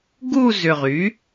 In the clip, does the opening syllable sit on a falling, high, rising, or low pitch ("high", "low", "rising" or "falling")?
falling